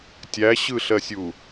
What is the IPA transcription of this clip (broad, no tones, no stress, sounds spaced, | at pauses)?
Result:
tʲ æ ɕ ɯ ɬ ɜ sʲ u